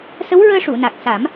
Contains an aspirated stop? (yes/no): no